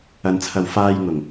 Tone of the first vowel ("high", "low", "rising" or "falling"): low